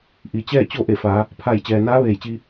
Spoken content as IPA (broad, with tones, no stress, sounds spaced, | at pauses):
ʔ i˩ t͡ɕ ɛː˥˨ t͡ɕ o˥˨ ʔ e˧˩ f aː˩˧ | pʰ a˧˩ j t͡ɕ ɛː˩ n aː˧˥ ʋ eː˧˩ j t͡ɕ iː˧